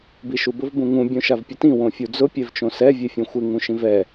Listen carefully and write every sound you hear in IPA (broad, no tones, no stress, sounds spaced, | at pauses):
b i ʃ u b ʊ v b ũ ŋ ũ bʲ õ ʃ a v pʲ ʊ t ĩ w õ fʲ u d͡z ʊ pʲ ɛ v t͡ʃ õ s ɛ vʲ e fʲ õ xʷ ɪ ŋ ũ ʃ ĩ v ɛ